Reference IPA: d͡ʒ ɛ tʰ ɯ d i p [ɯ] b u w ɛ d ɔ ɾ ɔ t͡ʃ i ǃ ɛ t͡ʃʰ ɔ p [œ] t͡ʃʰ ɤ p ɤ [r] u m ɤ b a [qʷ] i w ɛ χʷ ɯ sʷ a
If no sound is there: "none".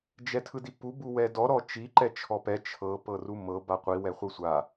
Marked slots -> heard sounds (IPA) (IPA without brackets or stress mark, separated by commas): u, ɛ, r, qʷ